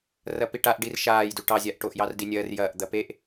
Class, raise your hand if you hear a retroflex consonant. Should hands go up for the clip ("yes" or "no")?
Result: yes